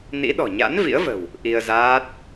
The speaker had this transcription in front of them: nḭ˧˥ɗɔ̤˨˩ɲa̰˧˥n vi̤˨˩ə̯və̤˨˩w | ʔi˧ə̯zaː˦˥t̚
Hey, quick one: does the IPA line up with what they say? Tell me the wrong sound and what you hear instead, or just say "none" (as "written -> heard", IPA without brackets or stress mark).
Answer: i̤˨˩ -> ḭ˧˥